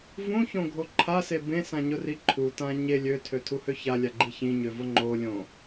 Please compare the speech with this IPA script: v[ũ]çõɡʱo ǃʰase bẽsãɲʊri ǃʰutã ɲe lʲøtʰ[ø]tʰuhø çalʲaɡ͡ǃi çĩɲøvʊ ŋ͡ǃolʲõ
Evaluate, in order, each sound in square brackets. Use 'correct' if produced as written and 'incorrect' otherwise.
correct, correct

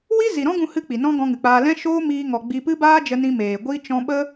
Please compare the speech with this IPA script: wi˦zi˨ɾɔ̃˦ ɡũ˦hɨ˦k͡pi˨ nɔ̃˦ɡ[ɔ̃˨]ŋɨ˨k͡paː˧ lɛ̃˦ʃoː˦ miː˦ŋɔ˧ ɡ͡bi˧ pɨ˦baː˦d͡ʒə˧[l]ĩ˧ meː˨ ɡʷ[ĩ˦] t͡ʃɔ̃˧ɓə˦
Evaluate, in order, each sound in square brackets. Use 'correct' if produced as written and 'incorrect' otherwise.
incorrect, incorrect, incorrect

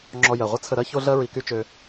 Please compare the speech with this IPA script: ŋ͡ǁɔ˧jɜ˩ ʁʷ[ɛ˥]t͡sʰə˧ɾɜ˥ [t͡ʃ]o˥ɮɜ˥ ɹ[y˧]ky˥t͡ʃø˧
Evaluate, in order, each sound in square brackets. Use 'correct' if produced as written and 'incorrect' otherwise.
incorrect, incorrect, incorrect

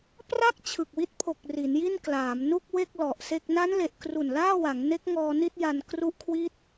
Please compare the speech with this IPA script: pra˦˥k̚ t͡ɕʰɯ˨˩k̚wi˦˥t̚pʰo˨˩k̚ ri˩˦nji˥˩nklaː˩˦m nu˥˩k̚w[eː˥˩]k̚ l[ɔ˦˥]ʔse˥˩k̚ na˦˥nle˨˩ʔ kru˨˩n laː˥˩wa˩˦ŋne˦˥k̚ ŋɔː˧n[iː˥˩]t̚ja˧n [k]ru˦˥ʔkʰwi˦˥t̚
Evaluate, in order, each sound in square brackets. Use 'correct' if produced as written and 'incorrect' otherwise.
incorrect, incorrect, incorrect, correct

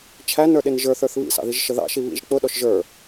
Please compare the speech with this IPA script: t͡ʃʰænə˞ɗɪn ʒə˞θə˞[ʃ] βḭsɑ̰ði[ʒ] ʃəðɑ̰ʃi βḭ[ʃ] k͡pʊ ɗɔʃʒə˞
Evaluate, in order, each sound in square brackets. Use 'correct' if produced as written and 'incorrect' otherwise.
incorrect, correct, incorrect

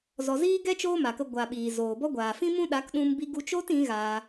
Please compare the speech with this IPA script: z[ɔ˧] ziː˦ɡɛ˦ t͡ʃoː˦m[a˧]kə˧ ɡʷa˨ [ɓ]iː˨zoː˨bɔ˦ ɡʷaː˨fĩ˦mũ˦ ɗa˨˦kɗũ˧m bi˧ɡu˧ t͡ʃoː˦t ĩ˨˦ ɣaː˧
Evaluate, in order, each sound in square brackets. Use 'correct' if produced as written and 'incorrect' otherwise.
correct, incorrect, correct

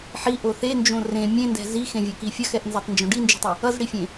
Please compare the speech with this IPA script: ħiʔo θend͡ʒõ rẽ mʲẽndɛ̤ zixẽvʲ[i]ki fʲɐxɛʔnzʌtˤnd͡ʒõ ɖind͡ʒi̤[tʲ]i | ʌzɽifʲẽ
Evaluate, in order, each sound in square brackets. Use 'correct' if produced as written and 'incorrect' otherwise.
incorrect, incorrect

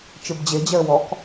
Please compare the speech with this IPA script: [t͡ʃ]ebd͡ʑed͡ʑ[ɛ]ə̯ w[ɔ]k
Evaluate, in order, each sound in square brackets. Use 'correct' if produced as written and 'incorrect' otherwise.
correct, correct, correct

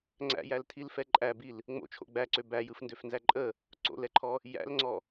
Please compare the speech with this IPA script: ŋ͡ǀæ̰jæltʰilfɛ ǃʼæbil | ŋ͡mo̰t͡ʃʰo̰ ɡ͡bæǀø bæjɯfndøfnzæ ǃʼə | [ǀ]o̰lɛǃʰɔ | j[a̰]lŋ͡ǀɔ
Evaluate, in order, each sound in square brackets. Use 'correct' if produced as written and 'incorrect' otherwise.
correct, incorrect

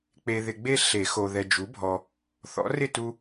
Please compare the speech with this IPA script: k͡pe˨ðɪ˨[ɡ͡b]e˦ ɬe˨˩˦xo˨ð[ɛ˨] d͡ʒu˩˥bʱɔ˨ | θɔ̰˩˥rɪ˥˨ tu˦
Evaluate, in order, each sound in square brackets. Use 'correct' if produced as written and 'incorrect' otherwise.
correct, correct

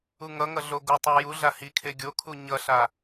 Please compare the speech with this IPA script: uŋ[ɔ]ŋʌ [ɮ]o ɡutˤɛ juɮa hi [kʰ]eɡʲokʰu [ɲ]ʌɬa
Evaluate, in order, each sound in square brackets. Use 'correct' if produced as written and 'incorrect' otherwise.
incorrect, correct, correct, correct

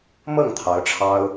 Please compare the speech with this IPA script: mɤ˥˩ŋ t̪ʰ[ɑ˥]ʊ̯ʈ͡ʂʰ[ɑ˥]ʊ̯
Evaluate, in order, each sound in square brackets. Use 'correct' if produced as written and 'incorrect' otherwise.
incorrect, correct

